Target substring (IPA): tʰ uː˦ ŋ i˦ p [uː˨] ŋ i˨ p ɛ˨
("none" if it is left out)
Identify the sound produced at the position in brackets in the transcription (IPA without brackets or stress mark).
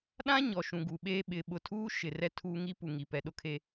u˨